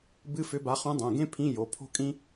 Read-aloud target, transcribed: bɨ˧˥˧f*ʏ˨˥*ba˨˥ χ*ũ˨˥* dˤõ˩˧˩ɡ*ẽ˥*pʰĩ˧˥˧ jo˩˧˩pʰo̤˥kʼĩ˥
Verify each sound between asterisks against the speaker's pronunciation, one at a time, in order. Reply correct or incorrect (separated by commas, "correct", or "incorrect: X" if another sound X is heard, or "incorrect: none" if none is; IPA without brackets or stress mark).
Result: correct, correct, correct